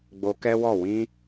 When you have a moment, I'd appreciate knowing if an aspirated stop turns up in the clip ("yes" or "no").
no